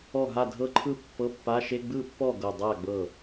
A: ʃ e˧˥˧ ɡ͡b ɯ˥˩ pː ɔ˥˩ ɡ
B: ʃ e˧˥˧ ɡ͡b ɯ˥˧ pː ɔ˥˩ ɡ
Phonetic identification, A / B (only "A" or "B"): A